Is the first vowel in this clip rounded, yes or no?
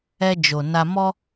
no